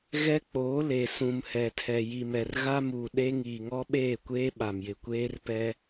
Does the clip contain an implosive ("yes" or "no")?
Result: yes